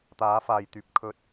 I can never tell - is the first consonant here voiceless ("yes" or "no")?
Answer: yes